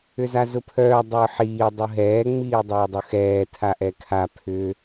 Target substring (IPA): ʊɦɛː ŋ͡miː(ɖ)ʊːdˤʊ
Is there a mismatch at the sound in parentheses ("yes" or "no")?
yes